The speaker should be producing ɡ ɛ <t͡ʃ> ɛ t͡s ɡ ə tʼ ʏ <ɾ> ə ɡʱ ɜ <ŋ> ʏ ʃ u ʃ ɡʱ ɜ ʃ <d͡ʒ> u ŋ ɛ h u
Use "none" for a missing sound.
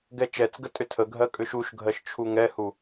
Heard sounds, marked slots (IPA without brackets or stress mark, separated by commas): t͡ʃ, tʰ, kʼ, t͡ʃʰ